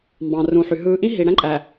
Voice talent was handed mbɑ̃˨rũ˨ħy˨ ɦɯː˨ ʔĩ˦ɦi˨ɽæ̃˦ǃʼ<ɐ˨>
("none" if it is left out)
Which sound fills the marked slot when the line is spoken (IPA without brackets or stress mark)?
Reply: æ˨